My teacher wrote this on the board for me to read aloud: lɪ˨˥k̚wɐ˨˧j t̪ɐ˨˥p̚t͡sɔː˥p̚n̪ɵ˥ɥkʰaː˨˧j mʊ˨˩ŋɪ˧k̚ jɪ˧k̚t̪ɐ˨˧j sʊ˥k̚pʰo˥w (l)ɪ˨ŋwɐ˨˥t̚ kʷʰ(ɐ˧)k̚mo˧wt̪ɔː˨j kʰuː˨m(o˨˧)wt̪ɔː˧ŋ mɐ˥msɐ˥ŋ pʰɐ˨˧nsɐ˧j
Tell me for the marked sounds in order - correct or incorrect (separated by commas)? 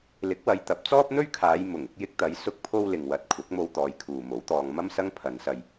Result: correct, incorrect, incorrect